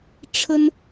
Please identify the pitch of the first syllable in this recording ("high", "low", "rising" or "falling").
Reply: high